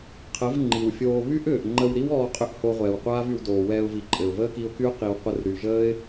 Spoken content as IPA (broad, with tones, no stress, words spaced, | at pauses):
qʰə˨˦v ŋ͡ǃi˨wfʲoː˧ βy˦ʔʏː˨ʔ ŋ͡ǃə˧wɾi˦wɔː˧ qʼʏ˦ʔho˧ʁʷɛː˨wqʷaː˦v y˧wdoː˨wɛː˧ʊ̯vi˨ ǃʼɘ˨ʊ̯ vəː˦ki˧ʊ̯ky˦ʊ̯ qi˨wqʷə˧r ɾy˨ʒəː˦ɪ̯